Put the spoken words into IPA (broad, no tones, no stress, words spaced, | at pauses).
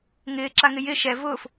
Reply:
ŋɪːǁaŋɪ jɪ ʃɛ vʊːf